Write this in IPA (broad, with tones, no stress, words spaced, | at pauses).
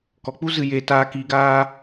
kɔ˨k͡pu˦ zɨ˨jeː˨ taː˧kiː˧ɡaː˦